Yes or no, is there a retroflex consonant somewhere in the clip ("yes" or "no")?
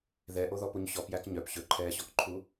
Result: no